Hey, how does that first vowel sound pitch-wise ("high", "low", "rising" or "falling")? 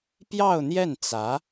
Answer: falling